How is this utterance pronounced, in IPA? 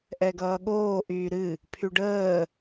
ʔ ɛ ɡ ʌː ɠ oː ʔ yː ɾ ɨ | pʰ y ɖ əː

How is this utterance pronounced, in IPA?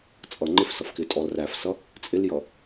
t͡sʼ ʌ ŋ͡ǃ ɪ f s ʌ f k ɪ tʼ ɔ l r æ f s ʌ | t͡sʼ ɪ l j ʌ

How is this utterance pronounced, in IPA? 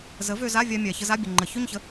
z ə˩˥ v ø˧ z a˧˥˧ vʲ a˧ mʲ a˩ ç ə˧ z a˧˥˧ bʲ ə˩ ŋ͡ǃ ə˩ ç ø˥˧ ɲ ç ə˩˥

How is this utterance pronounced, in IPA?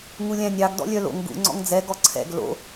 ŋ u lʲ æ̃ nʲ ɑ ɡ d ɔ̰ lʲ œ l o̰ ŋ ɡ ṵ ŋ͡ǀ ɔ̰ ŋ d͡z ɛ ɡ ɔ ǀʰ ɛ̰ ɡ l o̰

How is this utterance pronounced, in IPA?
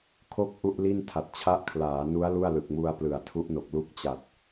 kʰ o˥˩ k̚ ʔ u˥˩ ʔ l i˥˩ n tʰ a˨˩ t̚ t͡ɕʰ a˦˥ ʔ kʰ l aː˩˦ n u˦˥ a̯ l u˥˩ a̯ l ɯ˨˩ k̚ m u˧ a̯ p l ɯ˩˦ a̯ tʰ u˦˥ ʔ n o˨˩ k̚ l u˦˥ k̚ t͡ɕ a˨˩ t̚

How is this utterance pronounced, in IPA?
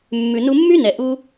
mː ʉ˨ n u˧ mː y˦ n ɛ˨ ʔ u˦

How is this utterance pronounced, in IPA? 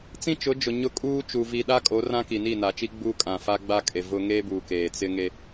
t͡s ĩ˦ t͡ʃ ʊ˨˦ d͡ʒ ʊ˨ ɲ ʊ˦ kʼ uː˦ t͡ʃ uː˨ v i˨ ɗ a˦ kʼ o˨˦ r ã˦ k i˨ n i˦˨ n a˨ t͡ʃ i˦ ɡ͡b uː˦ kʼ ã˨ f a˦ ɡ͡b a˦ kʼ e˨ v ʊ˦ ŋ eː˦ b uː˨ k eː˨ t͡s ɪ˦ ŋ e˦

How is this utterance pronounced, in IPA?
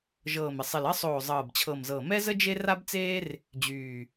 ʒ ɤː˨˩ m ɪ˨˩ sˤ ɪ˨˩ l ɜ˦ sˤ oː˨˩ zˤ ɤː˨˩ b t͡ɕʰ ɤ˨˩ m z ɤ˨˩ m ɛ˦ z ə˦ d͡ʒ e˦ r a˦ b t͡s eː˦ r | d͡ʑ yː˨˩

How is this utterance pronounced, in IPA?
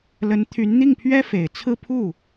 l ə˧˥ n t̪ʰ y˧˥ n n̪ i˥˩ ŋ pʰ ɥ ɛ˥ f e˨˩ ɪ̯ t͡sʰ ɹ̩˥˧ pʰ u˥˩

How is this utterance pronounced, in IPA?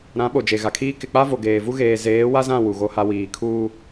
ɾ ã˨˦ ɓ o˨ d͡ʒ e˨ ɣ a˨ kʰ iː˦ k ɪ˨ k͡p a˦ v o˨ ɡ eː˨ v u˦ ɣ eː˨ z eː˨˦ w a˦ z ã˦˨ w u˨ ɣ o˦ h a˦ w iː˨ kʰ uː˦

